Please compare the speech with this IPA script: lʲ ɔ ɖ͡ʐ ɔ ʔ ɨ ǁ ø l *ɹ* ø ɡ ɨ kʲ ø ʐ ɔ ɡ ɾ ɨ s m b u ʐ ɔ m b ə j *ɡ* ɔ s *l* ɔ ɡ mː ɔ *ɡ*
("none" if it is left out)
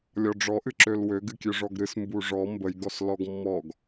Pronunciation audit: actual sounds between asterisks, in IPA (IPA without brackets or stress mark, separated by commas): w, ɡ, l, ɡ